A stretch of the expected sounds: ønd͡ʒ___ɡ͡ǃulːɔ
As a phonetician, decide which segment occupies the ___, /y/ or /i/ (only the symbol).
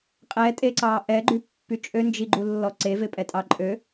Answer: i